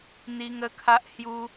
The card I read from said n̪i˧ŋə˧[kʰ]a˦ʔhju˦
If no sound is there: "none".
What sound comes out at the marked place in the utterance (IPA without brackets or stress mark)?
kʰ